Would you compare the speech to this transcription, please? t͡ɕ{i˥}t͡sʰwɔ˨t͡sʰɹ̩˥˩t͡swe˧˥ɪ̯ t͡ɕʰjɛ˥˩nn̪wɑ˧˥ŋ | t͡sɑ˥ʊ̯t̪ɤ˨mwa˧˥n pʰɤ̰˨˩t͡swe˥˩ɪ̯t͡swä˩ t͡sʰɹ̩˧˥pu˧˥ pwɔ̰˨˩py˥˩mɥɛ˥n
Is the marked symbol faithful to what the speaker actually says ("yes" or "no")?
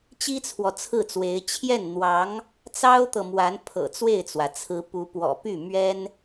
yes